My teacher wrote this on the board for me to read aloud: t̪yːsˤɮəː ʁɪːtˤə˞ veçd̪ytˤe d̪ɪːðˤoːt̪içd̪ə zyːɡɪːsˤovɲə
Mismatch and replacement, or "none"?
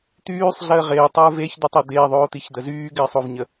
none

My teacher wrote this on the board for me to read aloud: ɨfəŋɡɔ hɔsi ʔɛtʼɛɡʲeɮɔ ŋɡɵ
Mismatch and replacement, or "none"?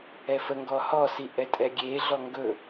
ɨ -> ɛ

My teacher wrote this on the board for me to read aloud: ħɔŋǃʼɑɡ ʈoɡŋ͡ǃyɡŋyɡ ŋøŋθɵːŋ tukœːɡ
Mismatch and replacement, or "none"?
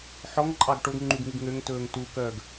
θ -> t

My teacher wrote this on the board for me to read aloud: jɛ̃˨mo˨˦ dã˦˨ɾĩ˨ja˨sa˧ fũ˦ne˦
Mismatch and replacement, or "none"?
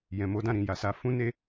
none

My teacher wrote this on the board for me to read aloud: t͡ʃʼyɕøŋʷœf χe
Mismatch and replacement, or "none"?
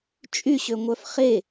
none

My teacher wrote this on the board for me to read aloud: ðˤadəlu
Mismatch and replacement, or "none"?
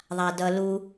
ə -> ʌ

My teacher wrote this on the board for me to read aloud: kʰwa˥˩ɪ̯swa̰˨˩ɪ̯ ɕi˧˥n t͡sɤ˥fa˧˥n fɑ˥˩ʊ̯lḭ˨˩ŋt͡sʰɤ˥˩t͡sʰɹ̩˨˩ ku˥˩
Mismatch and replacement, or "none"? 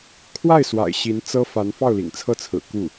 none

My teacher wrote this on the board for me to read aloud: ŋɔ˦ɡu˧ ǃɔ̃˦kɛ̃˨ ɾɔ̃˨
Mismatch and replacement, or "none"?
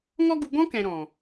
ǃ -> ɡ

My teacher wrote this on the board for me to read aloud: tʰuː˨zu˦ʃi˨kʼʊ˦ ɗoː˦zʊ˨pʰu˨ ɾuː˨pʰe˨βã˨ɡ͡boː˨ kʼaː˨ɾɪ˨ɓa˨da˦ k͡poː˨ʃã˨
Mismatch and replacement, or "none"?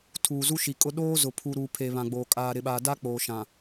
none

